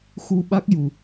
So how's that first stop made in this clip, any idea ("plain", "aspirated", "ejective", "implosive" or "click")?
implosive